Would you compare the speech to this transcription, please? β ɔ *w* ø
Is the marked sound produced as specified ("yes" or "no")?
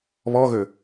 no